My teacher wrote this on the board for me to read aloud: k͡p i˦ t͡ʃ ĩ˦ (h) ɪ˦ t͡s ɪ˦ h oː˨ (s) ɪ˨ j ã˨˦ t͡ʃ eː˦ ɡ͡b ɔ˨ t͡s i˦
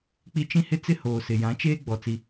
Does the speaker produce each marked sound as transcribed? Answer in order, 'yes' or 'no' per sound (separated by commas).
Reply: yes, yes